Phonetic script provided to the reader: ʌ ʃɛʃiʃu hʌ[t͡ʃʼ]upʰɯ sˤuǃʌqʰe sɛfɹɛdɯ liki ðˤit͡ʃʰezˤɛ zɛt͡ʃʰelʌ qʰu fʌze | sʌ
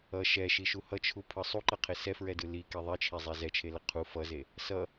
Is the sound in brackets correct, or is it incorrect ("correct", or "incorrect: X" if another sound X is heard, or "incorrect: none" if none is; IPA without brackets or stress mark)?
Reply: incorrect: t͡ʃʰ